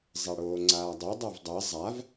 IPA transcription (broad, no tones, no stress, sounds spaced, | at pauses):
zˤ ɛ ɽ oː ŋ͡ǀ aː dˤ ɛ dˤ a v dˤ ɛ zˤ a v